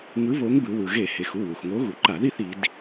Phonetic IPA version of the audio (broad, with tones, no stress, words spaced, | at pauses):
ŋɯ˨˥ βo˨˥ŋbɯ˩˧ wɯ˩ɣe˧˩˧ he˩˧xu˩˧˩wu˩xŋo˨˥ ɣu˩ǃa˧˩˧ði˥˨θ i˩˧d